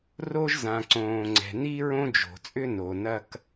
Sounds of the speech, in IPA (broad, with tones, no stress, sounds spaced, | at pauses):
r o˥ ʒ z ã˩ ǀ õː˩ ŋ͡ǀ ɛ̤˩ n i˥ ɹ õ˥ d͡ʒ o̤˩ t͡sʼ ʏ˥ n o˩ n ɐ˥ k